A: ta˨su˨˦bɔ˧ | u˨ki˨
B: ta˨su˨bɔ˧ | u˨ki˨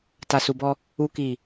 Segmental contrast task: B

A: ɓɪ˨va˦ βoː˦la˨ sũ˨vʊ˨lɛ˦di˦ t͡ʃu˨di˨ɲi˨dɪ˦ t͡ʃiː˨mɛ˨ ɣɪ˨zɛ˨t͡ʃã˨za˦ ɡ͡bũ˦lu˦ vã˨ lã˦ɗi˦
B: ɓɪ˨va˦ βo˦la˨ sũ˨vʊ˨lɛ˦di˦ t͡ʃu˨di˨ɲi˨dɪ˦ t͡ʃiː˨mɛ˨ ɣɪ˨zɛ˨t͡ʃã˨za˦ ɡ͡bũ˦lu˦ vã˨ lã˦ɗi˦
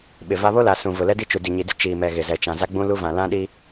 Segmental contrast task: B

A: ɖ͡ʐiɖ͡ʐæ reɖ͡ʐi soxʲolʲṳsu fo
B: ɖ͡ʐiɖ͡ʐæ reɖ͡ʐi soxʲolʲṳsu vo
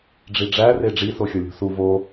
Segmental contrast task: B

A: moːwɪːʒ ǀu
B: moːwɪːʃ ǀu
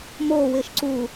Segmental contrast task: B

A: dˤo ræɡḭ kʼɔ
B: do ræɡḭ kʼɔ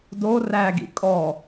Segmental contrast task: B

